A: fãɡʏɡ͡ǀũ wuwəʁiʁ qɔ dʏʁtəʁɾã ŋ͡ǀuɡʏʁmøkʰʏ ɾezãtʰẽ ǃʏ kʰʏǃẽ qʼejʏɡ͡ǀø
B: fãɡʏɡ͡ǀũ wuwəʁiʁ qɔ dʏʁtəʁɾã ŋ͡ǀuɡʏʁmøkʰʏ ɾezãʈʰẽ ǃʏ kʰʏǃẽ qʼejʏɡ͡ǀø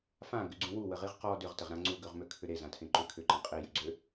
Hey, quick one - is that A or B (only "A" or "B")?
A